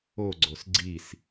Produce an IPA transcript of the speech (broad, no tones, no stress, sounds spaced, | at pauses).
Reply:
o ɡ͡ǀ o s ɡ͡ǀ i s